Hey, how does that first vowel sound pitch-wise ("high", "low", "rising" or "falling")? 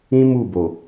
high